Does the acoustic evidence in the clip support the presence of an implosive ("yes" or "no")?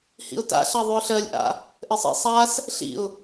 no